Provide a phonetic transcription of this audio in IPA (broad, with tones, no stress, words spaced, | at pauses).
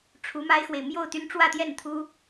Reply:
ʈ͡ʂʰu˧˥ma˥ɪ̯xwe˨ɪ̯ mjo˥˩ʊ̯t̪y˥n ʈ͡ʂwä˥˧t̪jɛ˥˩nt̪ʰu˥